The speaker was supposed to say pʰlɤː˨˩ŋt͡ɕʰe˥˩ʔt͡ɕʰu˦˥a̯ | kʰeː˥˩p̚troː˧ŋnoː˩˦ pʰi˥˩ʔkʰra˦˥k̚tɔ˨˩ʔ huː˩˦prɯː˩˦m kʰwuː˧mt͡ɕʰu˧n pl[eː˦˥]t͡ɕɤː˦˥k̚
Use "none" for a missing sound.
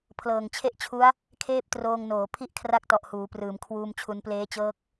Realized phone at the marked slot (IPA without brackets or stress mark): eː˦˥